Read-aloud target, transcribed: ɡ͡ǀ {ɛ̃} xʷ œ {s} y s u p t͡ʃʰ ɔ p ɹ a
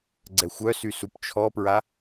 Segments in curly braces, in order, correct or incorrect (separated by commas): incorrect, correct